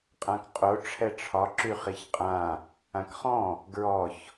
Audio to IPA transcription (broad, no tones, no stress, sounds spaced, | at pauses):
qʼ ã k qʼ o ʈ͡ʂʰ ɛ ʈ͡ʂʰ ɒ ǁ y χ i ç qʼ ã | ã k χ ɔ̃ | ɡ ɹ ɔ ç